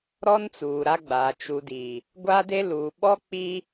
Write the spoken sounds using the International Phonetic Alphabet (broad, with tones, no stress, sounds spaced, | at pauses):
ɾ ɔ˦ n t͡s uː˨ ɾ a˦ ɡ͡b a˨ t͡ʃ u˨ d i˨ | ɡʷ a˦ d e˦ l uː˨ ɓ ɔ˦ k͡p i˦